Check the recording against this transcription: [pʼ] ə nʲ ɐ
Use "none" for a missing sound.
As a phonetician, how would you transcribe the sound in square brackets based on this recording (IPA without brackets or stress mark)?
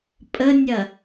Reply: pʼ